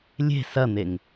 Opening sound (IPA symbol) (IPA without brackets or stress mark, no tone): lʲ